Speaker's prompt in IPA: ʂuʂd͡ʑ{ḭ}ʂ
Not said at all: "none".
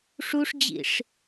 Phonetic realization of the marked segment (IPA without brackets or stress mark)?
ḭ